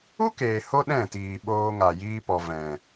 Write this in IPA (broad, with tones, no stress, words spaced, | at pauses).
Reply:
u˦keː˨ ho˦ɗɛ̃˦˨tiː˨ ɓoː˧ ŋa˨jiː˧pɔ˨ vɛ̃˨